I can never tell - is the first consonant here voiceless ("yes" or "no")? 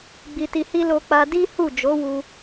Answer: no